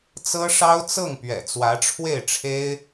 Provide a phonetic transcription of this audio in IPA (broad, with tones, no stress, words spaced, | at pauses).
t͡sɤ˥ʂɑ˥ʊ̯t͡sɤ˥˩ŋpɥɛ̰˨˩ t͡swä˧˥ʈ͡ʂʰwe˥˩ɪ̯ʈ͡ʂʰe˥ɪ̯